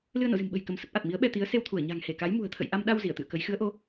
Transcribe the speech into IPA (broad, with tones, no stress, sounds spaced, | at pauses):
l ɨ˧ ə̯ n o̰˧˨ z ɨ̤˨˩ m ɓ ə̤˨˩ j k ə˨˦ m s ə˦˥ p̚ ʔ a˨˩ t̚ m i˨˦ ə̯ ɓ ɛ˧ t̪ i˨˦ ə̯ s e˧ w t̪ʰ u˧˩ ə̯ ɲ a̤˨˩ ŋ h e˧˩ k a˨˦ j m ṳ˨˩ ə̯ t̪ʰ ə̰˧˨ j ʔ a˧ m ɗ a˧ w z i˧˩ ə̯ t̪ ɨ̰˧˨ ə̯ k ə˨˦ j x ɨ˨˦ ə̯ ʔ o˨˦